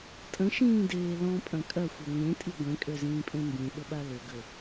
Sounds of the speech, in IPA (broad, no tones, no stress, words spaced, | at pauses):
tʼə̃ʃĩːdeː lɔ̃pʼɐ̃ kʼɐxʷɐ ŋẽtʼi ɡʷẽkʼøzĩːpʼẽ mbĩɓəɓa lʏɡə